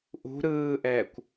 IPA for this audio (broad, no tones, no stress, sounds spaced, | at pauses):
ʔ ṳ ɾ ɯː ʔ ɛː kʷ